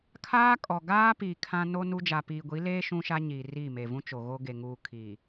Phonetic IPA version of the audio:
kʰ aː˦ kʼ ɔ˨ ɡ aː˦ p i˨ kʰ ã˦ n o˦ n u˦ d͡ʒ a˨ p iː˨ ɡʷ i˨˦ l eː˦ ʃ ũ˦ ʃ a˦ ɲ iː˨ r i˦˨ m e˨ v ũ˦ t͡ʃ o˨ ɣ o˦ ɡ e˨ ŋ uː˨ kʰ i˨

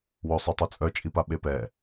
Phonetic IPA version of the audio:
w o sˤ o tˤ u t͡sʼ œ t͡ʃʼ i p a ɓ e p ɛ

